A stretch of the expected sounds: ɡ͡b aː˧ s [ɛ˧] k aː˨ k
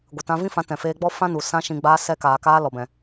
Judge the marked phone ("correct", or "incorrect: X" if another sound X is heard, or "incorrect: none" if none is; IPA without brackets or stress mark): correct